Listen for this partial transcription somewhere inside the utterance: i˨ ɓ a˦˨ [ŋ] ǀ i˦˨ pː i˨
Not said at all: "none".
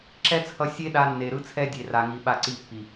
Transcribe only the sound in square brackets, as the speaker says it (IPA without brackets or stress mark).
none